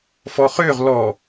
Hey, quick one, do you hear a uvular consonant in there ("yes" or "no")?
yes